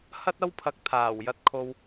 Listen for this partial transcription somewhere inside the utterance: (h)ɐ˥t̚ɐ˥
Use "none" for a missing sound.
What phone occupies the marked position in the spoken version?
h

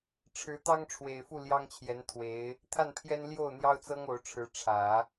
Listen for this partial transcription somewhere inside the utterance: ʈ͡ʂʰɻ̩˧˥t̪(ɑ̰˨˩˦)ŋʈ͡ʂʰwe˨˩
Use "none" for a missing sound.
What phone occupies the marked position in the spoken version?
ɑ˥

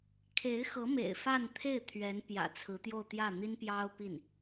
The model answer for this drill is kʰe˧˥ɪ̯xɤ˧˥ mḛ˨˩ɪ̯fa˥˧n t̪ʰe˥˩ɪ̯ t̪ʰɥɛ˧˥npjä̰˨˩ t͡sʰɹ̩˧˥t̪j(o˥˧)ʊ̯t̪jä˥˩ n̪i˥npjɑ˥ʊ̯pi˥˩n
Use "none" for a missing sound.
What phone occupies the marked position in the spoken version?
o˥˧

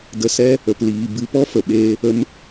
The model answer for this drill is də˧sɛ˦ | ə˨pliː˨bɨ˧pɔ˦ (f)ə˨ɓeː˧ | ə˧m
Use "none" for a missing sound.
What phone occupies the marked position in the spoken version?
f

